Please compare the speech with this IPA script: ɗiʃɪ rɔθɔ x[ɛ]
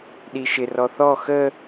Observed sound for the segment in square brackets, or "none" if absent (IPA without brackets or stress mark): ə